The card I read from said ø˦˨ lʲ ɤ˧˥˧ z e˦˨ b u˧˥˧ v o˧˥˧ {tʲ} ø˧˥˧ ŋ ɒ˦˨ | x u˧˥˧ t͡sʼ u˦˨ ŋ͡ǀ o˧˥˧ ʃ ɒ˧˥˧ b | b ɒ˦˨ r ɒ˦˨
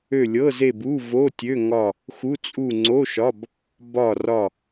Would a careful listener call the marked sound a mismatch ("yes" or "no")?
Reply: no